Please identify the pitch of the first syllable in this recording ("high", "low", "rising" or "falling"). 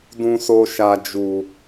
low